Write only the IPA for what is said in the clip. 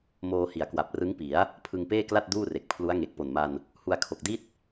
moː˧ hi˨˩a̯kwa˨˩p̚rɯ˦˥ŋpi˩˦a̯ | pʰɯ˧ŋpeː˥˩kla˥˩t̚ duː˥˩re˨˩k̚pʰlu˦˥a̯ŋe˨˩k̚ po˨˩nma˧n | hu˧a̯kʰo˨˩k̚di˥˩t̚

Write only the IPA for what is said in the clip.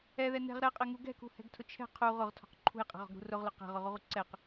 ɛðɛ nɛ̤ʁ ɾɛqʼɛŋu ɡɛ̤kṳhɛ̤ɡtʰʊ t͡ʃʰɛ̤ qʰu ʁʊʁtʰɔ̤q ǃʰṳjqʼɛ̤ʁɔ̤ɡɾṳ rʊʁlʊ qɛ̤ʁʊʁuʁu ǀɛq

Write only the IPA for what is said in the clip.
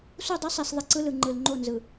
su˦˨dˤi˦ sˤi˨s ðˤi˨ǀɯ˦lɯ˨ ŋ͡ǃɯ˨l ŋ͡ǃo˦˨nzɯ˨

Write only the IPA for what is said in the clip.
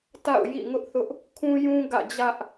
ta̰˦˨ʊ̯jḭ˦˨ŋʊ˦ʔθʊ˦ʔ | kʰũ˦ jũ˦ ɡä̰˦˨d͡ʑä˦ʔ

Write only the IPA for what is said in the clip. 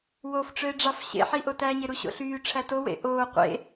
wofʈ͡ʂøe̯ɖ͡ʐɑf ɕḛħiʔo tæɲeɾuɕo̰ ɬyːʈ͡ʂʰæ towḛ ʔoː qʷḛ

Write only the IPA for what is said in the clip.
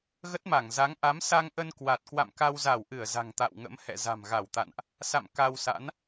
ɣə˦˥t̚ma˧˩ŋ za˨˦ŋ ʔa˨˦m sa˧ŋʔə˧nkwa˨˩t̚kwa̰˧˨m ka˧wza˧˩wʔɨ˧˩ə̯ za̤˨˩ŋt̪a̰˧˨wŋə̰˧˥m hɛ̰˧˨za̤˨˩mɣa˧˩wt̪a̰˧˨nʔ | sa̰˧˨m ka˧wsa̰˧˥n

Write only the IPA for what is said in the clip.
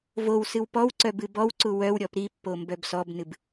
vowsɨw pɔwǀœ bɨbɔwǀu wœwɾʲɔp ɾipːo mbœbsɔbnɨb

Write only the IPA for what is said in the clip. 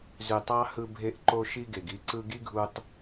zy˨tˤɑ˧ hɯ˧bʱe˧ʔ ǃo˧ʃi˧ ɡe˨ɡi˦ ǀɯ˧ ɡi˦ɡʱu˧tˤ

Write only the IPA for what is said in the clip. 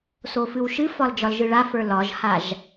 sofɨwʃɨfɒl d͡ʒɒlʒɯɭafə˞ lɒʒhaʒ

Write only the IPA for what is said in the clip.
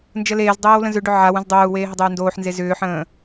nd͡ʒəleːzdˤeːw lə̃zʏɖʏ ʕaw ə̃zdˤoːu̯weː ɦɪdˤeu̯ndoːħnze zʏːħə̃ː

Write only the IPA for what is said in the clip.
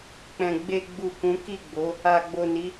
k͡pɛ̃˨ ɡ͡be˨ɡ͡bu˨ kũ˨˦ki˦˨ɡ͡bo˨˦ | a˨ɡ͡bo˨ni˨˦

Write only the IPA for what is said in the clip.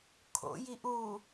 kʰo̰ jiʔu

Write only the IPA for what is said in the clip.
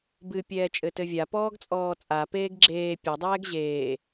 bɨ pʲɛːt͡ʃʼɘtɘvʲa pɔːɡt͡sʼɔːt͡sʼa peːɡɡ͡ǁeː pʲɐ dˤɛːɡʑeː

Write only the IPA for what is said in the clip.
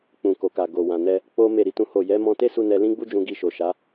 k͡pũ˨ko˨ka˨ ɡo˨wã˨nɛ˧ | k͡po˦ me˦˨ɾi˨˦tũ˦ho˦˨ jɛ˨˦mɔ̃˧te˦su˧ nɛ˧lĩ˦ɡ͡bu˦ d͡ʒũ˧ɡi˧ ʃo˨ʃa˨˦

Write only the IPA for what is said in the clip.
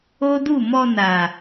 o˦du˦˨ mɔ˧na˨

